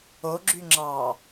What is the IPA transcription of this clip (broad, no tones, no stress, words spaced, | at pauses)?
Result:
oɡ͡ǁyŋ͡ǁɑ